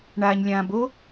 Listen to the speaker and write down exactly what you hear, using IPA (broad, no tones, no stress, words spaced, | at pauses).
ɳaːɲlʲãbo